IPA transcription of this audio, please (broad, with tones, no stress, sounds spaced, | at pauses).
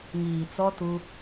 ŋ iː˨ t͡s ɔ˦ t u˦